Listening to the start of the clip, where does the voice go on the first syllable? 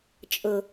low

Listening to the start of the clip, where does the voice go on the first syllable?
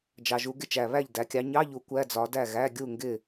low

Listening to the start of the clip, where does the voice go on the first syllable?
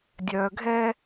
low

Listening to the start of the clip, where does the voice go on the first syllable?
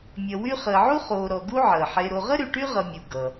low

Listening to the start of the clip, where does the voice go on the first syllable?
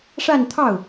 falling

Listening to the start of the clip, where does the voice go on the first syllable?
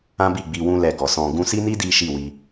high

